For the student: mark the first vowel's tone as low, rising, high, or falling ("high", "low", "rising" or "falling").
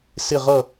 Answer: falling